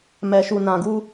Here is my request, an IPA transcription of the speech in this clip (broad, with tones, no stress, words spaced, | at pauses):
mɛ˨ʃu˨ nã˨ɡu˧